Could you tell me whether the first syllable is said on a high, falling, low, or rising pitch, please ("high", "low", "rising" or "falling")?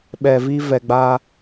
low